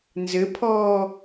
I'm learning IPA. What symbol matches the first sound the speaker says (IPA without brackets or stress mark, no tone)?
n